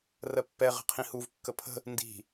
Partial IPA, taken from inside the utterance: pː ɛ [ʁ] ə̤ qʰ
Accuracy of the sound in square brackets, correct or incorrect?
correct